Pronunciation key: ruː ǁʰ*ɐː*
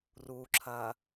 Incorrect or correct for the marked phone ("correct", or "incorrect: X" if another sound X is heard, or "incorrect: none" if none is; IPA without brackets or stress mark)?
correct